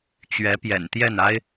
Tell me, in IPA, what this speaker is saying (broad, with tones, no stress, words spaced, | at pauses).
t͡ɕɥɛ˧˥pjɛ̰˨˩nt̪jɛ˥˩n a˥ɪ̯